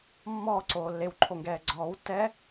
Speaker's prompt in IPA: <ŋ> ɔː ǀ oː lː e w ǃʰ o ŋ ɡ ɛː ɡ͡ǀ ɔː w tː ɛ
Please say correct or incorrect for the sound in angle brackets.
incorrect